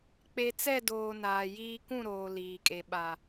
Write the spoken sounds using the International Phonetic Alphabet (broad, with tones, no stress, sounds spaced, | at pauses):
k͡p e˨ t͡s ɛ˦˨ d oː˨ n aː˨ j iː˦ k ũ˦˨ ɾ oː˨ l iː˨ kʼ e˨ ɓ a˨